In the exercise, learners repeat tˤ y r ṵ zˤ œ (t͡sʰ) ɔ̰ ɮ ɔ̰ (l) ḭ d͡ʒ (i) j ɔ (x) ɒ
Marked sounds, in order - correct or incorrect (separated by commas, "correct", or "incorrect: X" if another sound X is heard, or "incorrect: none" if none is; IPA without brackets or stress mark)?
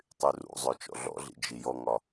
incorrect: t͡ʃ, incorrect: ɮ, correct, incorrect: ŋ